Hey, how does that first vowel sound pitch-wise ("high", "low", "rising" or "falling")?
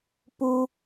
high